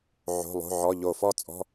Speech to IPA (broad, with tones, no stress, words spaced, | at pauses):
ʕo̤˧˥˧lˠo̤˧˥˧ʕɔ˧˥˧ ʎo˧˩fɔ˥˧ t͡sʼɔ̤˧˥˧